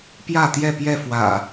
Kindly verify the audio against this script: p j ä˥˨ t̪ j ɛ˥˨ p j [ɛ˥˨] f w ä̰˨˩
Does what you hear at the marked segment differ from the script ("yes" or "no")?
no